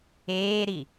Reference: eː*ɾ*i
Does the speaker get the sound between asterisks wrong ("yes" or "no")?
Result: no